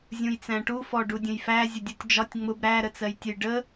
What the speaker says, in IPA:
zʲ ũ j t͡s æ̃ ʈ u f ɔ ɖ u dʲ ə̃ j f æ zʲ ə dʲ u tʲ d͡ʒ ɒ tʲ ŋ͡m ʊ b ɾ æ ɾ ə t͡s ɜ j tʲ ʊ j ɖ ə

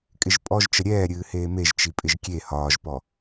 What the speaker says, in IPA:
kʼ ɪ ʒ pʼ ɔ ʒ t͡ʃ ə ɾʲ ɛː ɾʲ ɨː h eː m e ʒ t͡ʃ i pʼ ɪ ʒ kʲ e h ɒː ʒ p ɔ

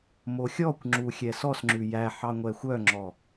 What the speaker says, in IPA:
m o xʲ ɔ kʷ ŋ͡ǁ u xʲ ɛ s ɔ s ŋ͡ǁ ʉ j æ ħ ɑ ŋʷ ɛ xʷ œ ŋ͡ǁ ɔ

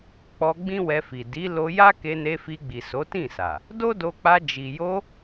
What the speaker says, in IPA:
k͡p ɔ˧ ɡ͡b ĩ˦ w ɛ˧ f i˨ d i˨˦ l o˧ j a˦ k e˧ n e˧ f i˧ ɡ͡b i˨ s o˨˦ t ĩ˦˨ s a˨ | d o˦ d o˧ k͡p a˧ d͡ʒ i˨ j o˧

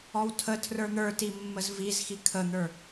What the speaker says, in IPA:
ɔ w tʰ ə tʰ r ə˞ n̪ ə˞ t i mː ə z v i z x i kʰ ə n̪ ə˞

